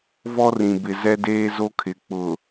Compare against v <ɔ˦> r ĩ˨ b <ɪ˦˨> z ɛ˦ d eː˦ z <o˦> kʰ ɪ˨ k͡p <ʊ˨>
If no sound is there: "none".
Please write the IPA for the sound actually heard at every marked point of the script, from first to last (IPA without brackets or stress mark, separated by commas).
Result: ɔ˦, ɪ˦, o˦, ʊ˨